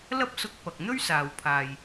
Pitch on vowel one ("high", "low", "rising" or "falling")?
high